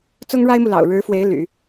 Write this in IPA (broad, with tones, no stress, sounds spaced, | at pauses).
t͡s ʊ˥ ŋ ɻ a˥ ɪ̯ m u˨ l ɑ̰˨˩ ʊ̯ ɻ ɻ̩˧˥ f w e˧˥ ɪ̯ l y̰˨˩˦